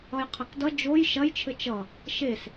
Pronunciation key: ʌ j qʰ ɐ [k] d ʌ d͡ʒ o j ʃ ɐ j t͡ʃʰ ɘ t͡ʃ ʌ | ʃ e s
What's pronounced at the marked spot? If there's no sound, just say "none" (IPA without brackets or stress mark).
k